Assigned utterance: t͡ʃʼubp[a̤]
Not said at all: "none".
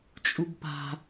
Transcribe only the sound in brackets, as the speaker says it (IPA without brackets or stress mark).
a̤